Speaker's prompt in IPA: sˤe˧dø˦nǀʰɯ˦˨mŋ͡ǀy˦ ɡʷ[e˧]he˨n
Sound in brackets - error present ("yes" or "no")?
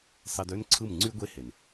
yes